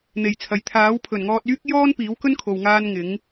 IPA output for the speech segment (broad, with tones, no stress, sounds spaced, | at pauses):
n̪ e˨˩ j t͡sʰ ɐ˨ j t̪ʰ aː˨˥ w pʰ ɵ˨˩ n ŋ ɔː˧ t̚ yː˥ k̚ j ɔː˥ n p iː˨˥ w k ɵ˥ n kʰ o˧ w ŋ aː˥ n ŋ ɪ˨˥ ŋ